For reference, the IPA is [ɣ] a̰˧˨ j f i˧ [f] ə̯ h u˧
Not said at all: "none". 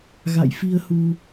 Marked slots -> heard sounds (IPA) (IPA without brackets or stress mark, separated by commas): ɣ, none